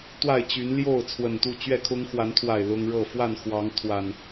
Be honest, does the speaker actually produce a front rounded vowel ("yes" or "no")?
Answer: yes